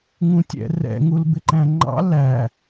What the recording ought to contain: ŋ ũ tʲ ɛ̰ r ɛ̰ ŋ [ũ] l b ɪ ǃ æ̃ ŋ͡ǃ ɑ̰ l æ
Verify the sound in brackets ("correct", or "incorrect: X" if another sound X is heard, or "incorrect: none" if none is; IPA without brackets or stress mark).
incorrect: u